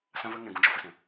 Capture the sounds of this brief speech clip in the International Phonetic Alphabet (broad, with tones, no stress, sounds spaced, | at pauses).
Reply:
s ã˦ v ə˦ ŋ ɛ̃˧ ɡ ũ˧ d͡ʒ ɔ˧ f ə˧ s ɛ̃˨